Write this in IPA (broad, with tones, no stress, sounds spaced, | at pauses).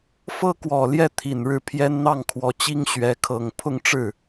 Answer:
f ɤ˥ k w ɔ˨˩ l j ɛ˥˩ t̪ʰ i˨˩ n ɻ ɻ̩˥˩ pʰ j ɛ˥ n n̪ ɑ˥˩ ŋ kʰ w ɔ˧˥ t͡ɕ i˥ ŋ ɕ ɥ ɛ˧˥ kʰ ɤ˨˩ ŋ pʰ ʊ˥˧ ŋ ʈ͡ʂ ɻ̩˥˩